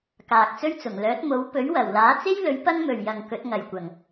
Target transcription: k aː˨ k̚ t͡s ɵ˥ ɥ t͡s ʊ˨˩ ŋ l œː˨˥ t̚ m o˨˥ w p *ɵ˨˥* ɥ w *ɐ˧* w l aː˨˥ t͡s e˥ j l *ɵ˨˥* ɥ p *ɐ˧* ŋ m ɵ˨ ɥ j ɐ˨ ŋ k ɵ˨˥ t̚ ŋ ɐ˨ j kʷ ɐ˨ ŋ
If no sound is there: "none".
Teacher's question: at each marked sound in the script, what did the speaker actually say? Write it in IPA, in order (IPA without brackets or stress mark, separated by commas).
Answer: ɵ˨˥, ɐ˨˩, ɵ˨˥, ɐ˥